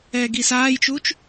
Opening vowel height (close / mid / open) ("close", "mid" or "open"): mid